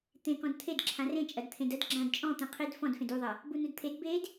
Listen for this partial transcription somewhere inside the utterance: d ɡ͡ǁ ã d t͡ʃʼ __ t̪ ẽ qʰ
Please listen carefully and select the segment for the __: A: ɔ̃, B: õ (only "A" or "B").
A